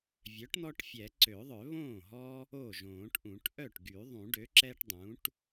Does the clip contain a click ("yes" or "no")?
yes